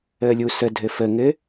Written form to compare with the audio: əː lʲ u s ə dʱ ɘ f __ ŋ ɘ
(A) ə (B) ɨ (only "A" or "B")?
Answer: A